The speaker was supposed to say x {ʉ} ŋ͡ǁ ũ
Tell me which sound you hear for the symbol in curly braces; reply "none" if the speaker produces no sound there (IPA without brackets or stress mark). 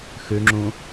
ʉ